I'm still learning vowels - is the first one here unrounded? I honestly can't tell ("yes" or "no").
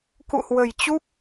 no